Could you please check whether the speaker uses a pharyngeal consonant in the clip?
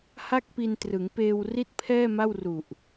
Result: no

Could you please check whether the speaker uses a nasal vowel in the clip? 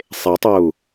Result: no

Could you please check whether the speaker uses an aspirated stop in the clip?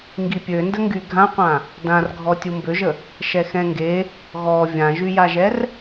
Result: no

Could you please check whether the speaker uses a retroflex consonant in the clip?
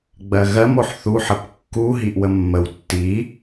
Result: no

